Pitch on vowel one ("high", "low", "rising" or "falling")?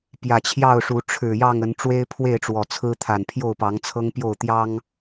low